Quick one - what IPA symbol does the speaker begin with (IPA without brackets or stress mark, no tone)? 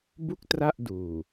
b